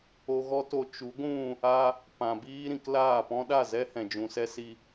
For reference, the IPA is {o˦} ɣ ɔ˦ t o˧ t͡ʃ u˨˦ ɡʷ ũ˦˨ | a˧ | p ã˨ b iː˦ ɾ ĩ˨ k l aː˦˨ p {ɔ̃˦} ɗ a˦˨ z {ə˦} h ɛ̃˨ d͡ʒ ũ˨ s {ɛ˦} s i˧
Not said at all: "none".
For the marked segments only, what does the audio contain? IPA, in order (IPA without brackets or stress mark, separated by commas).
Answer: o˧, ɔ̃˦, ɛ˦, ɛ˦